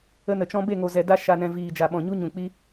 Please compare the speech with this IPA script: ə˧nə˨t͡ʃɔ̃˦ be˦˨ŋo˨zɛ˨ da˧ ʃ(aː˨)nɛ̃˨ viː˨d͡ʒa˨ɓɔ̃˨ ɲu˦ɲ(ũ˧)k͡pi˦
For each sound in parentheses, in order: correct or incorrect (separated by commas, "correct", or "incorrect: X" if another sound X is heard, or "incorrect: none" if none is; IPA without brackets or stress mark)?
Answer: incorrect: a˨, incorrect: ũ˨